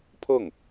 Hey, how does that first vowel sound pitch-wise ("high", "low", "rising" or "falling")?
falling